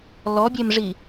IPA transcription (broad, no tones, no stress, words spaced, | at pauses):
lɔbʲemʐi